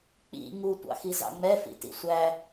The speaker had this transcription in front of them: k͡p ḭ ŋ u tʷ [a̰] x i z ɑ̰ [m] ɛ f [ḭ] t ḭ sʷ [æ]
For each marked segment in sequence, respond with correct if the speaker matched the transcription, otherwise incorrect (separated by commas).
incorrect, incorrect, correct, correct